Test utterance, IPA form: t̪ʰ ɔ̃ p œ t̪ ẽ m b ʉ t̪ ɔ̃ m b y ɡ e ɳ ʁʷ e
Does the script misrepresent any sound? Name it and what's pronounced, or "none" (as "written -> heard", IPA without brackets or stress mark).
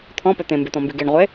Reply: none